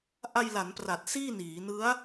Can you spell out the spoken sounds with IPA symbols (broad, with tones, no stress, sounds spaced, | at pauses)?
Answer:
ʔ a˧ j l a˩˦ n p r a˨˩ t̚ s iː˥˩ n iː˩˦ n ɯ˦˥ a̯